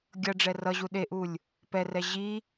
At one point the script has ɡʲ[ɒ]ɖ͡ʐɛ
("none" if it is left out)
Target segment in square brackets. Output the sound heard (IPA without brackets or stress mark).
ʌ